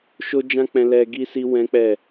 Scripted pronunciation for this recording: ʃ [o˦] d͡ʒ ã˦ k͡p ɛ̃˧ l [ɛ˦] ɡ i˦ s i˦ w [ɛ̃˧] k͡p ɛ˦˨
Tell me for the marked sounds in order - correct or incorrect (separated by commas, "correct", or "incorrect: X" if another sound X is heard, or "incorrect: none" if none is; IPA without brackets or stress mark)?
correct, correct, incorrect: ɛ̃˦